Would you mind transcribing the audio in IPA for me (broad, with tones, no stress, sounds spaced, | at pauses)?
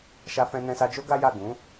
ʃ a˧ f ɛ̃˧ n ɛ̃˧ s a˧ d͡ʒ o˦ ɡ a˦ j a˦˨ ɡ ũ˨˦